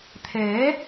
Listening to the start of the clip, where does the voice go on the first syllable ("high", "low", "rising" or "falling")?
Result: rising